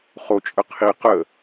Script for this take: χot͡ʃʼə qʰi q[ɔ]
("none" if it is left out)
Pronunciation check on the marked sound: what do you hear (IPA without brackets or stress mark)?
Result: ə